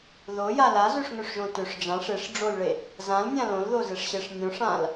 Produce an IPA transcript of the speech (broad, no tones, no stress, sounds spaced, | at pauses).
ð o j a l a z ø ʂ ŋ ø ʂ ʒ õ t ø ʂ d͡ʒ ã ʂ e ʂ ɖ͡ʐ o l ɭ e | z ã l nʲ ã l õ l ð o z e ʂ ɕ e ʂ nʲ õ ʂ ã l